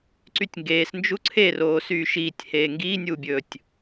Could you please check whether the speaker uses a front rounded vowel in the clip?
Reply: yes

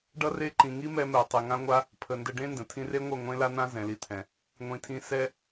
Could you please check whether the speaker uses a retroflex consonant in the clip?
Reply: yes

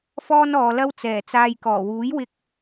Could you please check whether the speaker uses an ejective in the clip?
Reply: no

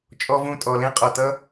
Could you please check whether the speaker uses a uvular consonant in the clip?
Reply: yes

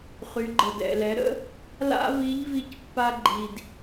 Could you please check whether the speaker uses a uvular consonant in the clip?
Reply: yes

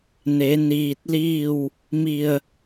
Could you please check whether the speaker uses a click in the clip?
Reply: no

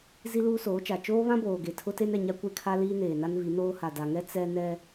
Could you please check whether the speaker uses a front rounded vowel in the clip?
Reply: no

